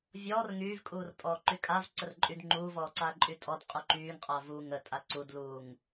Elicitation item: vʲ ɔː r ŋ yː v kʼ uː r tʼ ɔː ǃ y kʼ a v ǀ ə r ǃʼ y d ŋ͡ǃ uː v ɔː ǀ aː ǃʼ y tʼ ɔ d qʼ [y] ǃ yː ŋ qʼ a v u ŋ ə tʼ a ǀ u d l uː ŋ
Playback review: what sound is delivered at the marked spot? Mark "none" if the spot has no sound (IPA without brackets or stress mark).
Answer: y